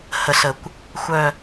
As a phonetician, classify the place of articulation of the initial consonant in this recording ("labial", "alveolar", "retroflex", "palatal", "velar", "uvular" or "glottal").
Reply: glottal